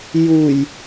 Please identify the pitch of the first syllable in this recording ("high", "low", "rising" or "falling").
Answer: low